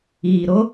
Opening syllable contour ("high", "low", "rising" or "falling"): low